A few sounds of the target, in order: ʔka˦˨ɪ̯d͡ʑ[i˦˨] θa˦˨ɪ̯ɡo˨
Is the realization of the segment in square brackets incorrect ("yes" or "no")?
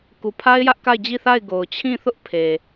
no